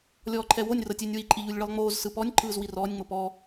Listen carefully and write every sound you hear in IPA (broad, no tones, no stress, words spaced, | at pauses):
lʲɔːǃʰɛwonʲ rɤtʲenʲwi ǃʼiʎulʲɭɯlˠŋ͡moːz sɯpɔnʲ ǃʰɯːzwirɔːnʲ ŋ͡mopɔː